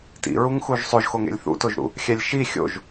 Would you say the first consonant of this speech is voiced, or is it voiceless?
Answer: voiceless